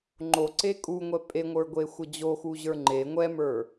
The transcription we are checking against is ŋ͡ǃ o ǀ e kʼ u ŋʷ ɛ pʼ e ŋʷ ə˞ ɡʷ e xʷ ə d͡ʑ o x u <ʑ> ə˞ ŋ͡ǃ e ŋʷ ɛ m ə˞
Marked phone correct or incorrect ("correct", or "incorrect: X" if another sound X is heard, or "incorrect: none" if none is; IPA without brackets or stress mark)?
correct